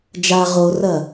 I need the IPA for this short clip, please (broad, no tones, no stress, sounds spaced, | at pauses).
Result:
d͡ʒ a ʁ o r ɐ